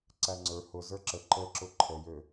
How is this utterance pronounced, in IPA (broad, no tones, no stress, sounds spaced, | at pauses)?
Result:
ǀ æ ŋ͡ǀ ə˞ h ʊ z ə˞ ǁ ə ǃ ə ǁ ʊ ǃʰ ə j ø